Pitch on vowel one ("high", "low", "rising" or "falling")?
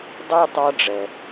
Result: high